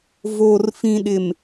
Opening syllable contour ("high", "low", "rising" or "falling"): low